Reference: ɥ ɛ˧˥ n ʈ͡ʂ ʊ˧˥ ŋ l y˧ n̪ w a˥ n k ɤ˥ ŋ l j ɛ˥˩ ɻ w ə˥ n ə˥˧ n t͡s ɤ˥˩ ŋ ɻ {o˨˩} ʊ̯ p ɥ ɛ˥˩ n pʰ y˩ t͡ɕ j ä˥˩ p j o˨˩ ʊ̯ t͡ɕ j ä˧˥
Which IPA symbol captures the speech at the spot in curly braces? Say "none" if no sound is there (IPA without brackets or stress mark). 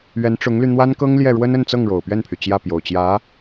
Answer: o˨˩